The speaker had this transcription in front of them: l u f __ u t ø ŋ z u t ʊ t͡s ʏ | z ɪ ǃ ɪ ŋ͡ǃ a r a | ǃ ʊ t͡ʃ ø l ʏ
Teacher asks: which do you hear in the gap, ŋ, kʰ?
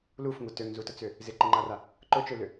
ŋ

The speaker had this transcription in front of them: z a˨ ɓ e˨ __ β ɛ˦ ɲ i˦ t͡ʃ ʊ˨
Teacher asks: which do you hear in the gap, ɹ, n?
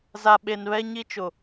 n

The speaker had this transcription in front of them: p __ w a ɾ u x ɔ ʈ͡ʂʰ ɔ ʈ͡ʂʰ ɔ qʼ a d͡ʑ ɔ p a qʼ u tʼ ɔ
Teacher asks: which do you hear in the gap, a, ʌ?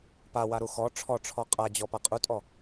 a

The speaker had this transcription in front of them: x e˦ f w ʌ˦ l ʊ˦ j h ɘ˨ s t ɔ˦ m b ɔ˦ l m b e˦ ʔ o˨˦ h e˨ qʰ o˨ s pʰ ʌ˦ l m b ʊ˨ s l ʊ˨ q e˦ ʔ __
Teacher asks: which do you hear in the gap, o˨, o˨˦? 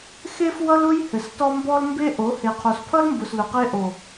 o˨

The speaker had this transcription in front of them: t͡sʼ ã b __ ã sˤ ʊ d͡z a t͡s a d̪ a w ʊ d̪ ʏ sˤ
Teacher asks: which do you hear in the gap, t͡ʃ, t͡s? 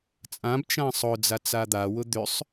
t͡ʃ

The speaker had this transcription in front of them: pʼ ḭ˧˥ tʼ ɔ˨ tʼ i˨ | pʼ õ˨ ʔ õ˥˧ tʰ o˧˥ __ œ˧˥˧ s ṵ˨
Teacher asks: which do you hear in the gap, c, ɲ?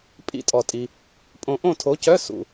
c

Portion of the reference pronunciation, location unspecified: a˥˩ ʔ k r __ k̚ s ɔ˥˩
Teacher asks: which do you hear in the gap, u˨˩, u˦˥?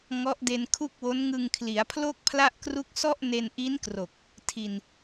u˦˥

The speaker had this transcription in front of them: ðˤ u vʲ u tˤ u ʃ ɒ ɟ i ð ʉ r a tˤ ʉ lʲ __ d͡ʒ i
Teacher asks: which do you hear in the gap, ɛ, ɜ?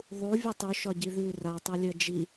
ɜ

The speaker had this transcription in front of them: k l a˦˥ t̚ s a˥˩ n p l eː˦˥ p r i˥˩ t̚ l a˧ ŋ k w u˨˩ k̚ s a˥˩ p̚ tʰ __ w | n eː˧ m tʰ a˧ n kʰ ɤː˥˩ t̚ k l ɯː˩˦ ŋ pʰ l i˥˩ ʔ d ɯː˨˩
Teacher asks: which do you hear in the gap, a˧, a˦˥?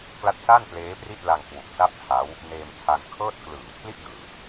a˦˥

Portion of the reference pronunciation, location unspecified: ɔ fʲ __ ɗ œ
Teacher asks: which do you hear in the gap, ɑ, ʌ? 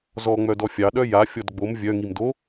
ɑ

